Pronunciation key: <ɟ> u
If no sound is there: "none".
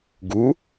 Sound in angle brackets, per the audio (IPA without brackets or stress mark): ɡ